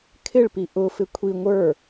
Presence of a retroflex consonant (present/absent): present